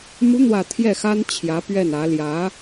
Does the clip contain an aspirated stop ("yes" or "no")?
yes